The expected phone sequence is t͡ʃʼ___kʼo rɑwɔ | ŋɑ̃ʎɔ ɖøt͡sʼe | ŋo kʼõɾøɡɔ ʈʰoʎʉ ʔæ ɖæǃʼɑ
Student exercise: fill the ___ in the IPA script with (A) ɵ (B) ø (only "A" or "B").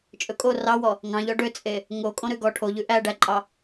A